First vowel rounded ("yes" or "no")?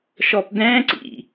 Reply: yes